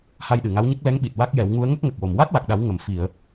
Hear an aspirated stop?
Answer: no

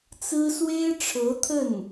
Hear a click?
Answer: no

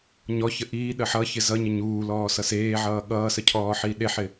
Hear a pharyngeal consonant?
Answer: yes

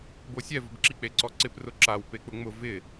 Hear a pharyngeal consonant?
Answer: no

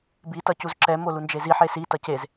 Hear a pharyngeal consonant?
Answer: yes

